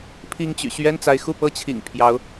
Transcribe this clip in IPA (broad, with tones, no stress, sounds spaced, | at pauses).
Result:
pʰ i˥ ŋ t͡ɕ y̰˨˩ ɕ ɥ ɛ˥ n t͡s a˧˥ ɪ̯ x u˥˧ p ɤ˥˩ t͡ɕʰ ḭ˨˩ ŋ pʰ j ɑ˧˥ ʊ̯